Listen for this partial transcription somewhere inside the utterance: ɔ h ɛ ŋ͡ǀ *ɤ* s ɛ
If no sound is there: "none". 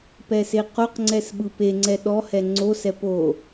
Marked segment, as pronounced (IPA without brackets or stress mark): o